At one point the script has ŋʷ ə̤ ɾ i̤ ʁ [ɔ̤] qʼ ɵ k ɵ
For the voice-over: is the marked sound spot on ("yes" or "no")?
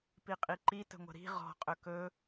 yes